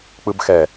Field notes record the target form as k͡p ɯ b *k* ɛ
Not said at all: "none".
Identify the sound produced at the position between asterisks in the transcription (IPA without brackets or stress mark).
x